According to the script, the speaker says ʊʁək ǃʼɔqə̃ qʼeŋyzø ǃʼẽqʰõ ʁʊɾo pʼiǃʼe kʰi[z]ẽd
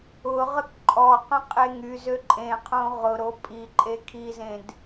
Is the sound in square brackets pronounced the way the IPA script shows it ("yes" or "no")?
yes